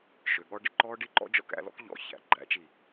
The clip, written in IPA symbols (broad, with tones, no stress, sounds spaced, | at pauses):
ʃ ø˨ ɠ ɔ˦ ɖ ɪ˧ ǃ ɔː˦ ɖ i˦ ǃ ɔ̰˦ d͡ʒ ɔ̰˧ k æ̰˧ l ɔ̰˦ k ʎ ɔ̰˨˦ ç æ̰˨˦ ɡ͡ǃ æ̰˨˦ t͡ʃ i˨